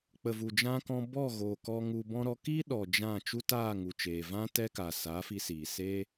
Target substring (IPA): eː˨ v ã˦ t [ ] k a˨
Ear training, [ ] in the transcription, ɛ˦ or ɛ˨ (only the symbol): ɛ˦